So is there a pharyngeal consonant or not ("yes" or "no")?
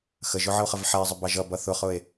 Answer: yes